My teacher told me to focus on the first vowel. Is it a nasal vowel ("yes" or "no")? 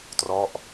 no